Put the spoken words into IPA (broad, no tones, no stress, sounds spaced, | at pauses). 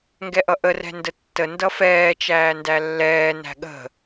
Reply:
ŋ ɡ ɛ ʔ ʌ ʔ ə r ɛ̤ n d ə tː ə n d ʌ f ɛː t͡ʃ æː n d æ lː ɛː n æ̤ ɠ ə̤